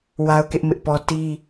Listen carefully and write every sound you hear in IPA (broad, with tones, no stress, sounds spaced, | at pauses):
w a˦ ʊ̯ k ɪ˦ ʔ m ɪ˦ ʔ p ɔ˦ t i˦